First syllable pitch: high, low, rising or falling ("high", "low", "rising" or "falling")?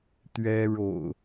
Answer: high